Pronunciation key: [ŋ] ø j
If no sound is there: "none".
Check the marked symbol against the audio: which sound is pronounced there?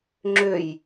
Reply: ŋ͡ǁ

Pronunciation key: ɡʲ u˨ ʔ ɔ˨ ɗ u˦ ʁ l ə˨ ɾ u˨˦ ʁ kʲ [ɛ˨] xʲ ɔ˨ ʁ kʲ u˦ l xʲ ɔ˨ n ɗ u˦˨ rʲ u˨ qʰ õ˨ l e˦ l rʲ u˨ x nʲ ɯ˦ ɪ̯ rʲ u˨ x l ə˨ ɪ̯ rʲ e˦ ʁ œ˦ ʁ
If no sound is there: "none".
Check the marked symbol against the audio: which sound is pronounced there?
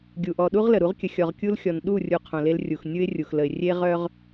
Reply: ə˨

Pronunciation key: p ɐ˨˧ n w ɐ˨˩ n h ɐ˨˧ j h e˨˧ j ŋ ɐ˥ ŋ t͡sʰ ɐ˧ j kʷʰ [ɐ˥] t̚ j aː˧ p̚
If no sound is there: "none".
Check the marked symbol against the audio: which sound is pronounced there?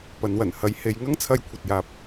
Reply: ɐ˧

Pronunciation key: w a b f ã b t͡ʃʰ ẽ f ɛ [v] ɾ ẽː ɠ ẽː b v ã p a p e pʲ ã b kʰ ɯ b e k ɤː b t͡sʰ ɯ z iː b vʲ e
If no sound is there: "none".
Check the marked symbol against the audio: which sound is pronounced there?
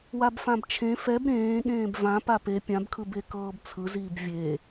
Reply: b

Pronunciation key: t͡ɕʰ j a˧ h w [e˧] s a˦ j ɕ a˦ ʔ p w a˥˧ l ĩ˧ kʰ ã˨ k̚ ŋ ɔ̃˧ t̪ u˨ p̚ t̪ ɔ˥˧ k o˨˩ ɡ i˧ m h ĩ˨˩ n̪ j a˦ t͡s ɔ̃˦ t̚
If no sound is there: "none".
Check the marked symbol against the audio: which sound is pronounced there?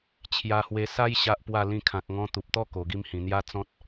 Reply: e˧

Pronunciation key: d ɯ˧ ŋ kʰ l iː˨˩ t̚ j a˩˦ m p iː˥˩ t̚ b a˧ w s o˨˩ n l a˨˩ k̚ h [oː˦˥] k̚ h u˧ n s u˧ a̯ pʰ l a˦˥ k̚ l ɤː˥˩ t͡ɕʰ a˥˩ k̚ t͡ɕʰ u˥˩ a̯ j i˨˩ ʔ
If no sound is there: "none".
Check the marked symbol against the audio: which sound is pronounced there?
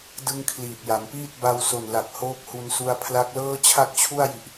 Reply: oː˦˥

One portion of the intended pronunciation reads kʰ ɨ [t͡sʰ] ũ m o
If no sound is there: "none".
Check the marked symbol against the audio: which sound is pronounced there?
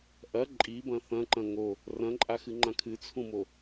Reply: t͡sʰ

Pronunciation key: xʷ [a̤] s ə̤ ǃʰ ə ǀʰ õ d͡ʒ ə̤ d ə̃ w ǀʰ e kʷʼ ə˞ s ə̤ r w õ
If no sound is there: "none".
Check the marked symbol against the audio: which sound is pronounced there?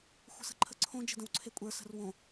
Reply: ə̤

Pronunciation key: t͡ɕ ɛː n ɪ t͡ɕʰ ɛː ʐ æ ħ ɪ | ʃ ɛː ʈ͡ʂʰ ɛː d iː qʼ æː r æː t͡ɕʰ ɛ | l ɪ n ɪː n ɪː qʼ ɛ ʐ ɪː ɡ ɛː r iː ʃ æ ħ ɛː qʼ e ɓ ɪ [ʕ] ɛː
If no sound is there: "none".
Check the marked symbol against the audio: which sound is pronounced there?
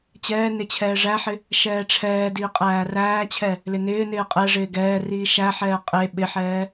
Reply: ħ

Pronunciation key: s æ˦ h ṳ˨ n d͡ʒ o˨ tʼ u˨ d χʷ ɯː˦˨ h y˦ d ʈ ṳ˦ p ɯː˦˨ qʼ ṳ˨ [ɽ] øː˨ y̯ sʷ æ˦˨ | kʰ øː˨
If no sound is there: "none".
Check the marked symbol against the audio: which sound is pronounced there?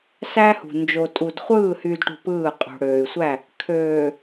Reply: ɽ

